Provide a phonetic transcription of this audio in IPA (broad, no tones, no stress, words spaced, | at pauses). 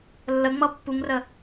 lːəŋ͡mʌ pːuŋrə